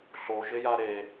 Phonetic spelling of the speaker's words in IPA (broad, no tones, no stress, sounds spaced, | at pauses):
ɬ o ʒ ɪ j a ɾ e